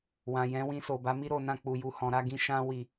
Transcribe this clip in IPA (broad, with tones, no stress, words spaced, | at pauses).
wã˨jɛ̃˨˦ wĩ˧so˨ba˨˦mi˦ ɾo˦˨nã˧ k͡pu˨ju˨hɔ̃˨ ɾa˨˦ɡĩ˧ ʃã˧wi˨